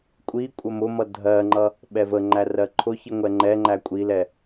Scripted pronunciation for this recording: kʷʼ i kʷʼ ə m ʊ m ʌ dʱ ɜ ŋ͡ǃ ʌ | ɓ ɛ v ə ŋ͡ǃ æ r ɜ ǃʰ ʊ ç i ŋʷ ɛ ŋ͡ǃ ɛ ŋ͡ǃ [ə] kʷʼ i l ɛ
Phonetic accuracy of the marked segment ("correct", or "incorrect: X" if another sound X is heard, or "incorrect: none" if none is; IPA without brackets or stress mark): incorrect: æ